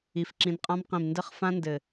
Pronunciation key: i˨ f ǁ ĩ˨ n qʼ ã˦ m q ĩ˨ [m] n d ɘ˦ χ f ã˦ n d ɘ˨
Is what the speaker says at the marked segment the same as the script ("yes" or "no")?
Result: yes